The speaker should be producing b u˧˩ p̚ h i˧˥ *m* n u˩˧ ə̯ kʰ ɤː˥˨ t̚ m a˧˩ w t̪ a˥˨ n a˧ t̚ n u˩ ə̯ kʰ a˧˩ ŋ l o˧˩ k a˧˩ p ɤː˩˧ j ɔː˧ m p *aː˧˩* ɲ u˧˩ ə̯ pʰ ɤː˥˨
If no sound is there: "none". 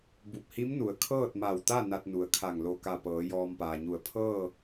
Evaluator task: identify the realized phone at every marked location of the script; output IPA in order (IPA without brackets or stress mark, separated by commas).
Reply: m, aː˩